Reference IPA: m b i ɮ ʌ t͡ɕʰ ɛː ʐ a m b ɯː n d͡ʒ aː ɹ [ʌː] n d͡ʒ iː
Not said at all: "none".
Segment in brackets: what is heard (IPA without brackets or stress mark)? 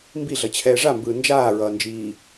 ʌː